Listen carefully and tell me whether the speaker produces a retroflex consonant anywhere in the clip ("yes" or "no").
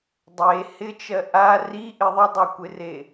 no